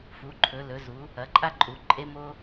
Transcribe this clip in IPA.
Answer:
f u˩˥ ǃʰ ɵ˩˥ l ɵ˩˥ z u˩˥ | ɐ˩˥ ǃʼ a˥ ǃʼ u˩˥ ǃʼ e˥ m o˥

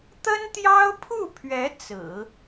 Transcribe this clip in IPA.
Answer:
t̪ ə˥ n t̪ j ɑ˥ ʊ̯ pʰ u˥˩ pʰ ɥ ɛ˧˥ t͡s ɹ̩˨˩˦

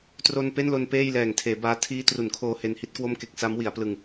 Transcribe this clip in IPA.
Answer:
t r o˧ n p e˥˩ n l o˧ n p eː˥˩ j l ɛː˨˩ ŋ tʰ eː˩˦ b aː˧ tʰ iː˦˥ t r u˩˦ n kʰ oː˧ h e˧ n h i˦˥ t̚ k w o˥˩ m k e˥˩ k̚ s a˦˥ m w i˩˦ a̯ p l ɯ˧ ŋ

